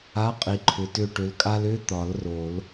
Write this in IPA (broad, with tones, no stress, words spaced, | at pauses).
a˧˥˧ qʼi˨ǃʰʏ˨ tʏ˦˨ʈʏ˨˦lkʼa˥l ʏ˧˥˧t̪ɒ˨˩˦l ro˨˩˦l